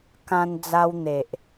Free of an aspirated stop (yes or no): yes